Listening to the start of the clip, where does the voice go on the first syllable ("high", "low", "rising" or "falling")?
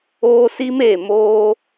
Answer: high